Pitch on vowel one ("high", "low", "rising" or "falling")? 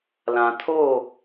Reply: low